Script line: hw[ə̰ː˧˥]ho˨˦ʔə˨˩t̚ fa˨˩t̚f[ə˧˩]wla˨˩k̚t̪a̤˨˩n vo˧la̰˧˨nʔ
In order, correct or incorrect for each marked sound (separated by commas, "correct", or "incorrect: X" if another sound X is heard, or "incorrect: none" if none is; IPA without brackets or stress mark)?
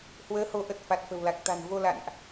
incorrect: əː˨˦, incorrect: ə̤˨˩